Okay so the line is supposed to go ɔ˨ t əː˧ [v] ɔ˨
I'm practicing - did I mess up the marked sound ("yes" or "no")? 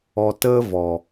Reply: no